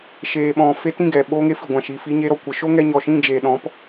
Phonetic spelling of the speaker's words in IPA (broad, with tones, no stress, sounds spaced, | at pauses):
ʃ eː˨ ɓ ɔ̃˨ f e˧ t ĩ˦˨ ɡ ɛ˨ ɓ o˧ ŋ e˦ f i˨ ɡʷ ã˨ ʃ iː˨ f iː˧ ɲ e˧ ɾ ɔ˨ kʷ ə˨ ʃ o˦ ŋ ɛ˧ ɲ ɔ˨ ʃ ĩ˦˨ d͡ʒ eː˨ ɗ ɔ̃˨˦ p